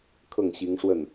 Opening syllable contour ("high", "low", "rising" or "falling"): falling